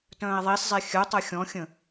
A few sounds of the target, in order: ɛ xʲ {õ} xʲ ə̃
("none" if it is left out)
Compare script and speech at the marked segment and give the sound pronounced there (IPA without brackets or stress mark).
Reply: ɔ̃